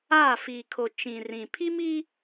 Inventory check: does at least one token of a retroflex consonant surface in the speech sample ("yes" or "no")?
no